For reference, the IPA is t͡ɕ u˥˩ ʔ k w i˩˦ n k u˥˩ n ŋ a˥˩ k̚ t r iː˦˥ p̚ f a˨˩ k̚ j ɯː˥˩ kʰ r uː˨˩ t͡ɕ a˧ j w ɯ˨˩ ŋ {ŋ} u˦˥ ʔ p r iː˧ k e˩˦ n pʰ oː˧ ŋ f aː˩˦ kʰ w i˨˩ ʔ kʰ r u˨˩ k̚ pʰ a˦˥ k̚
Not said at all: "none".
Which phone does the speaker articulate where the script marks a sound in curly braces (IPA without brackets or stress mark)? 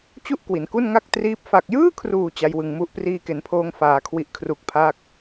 m